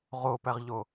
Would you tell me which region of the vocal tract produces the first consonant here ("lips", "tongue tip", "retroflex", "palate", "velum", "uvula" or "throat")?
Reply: uvula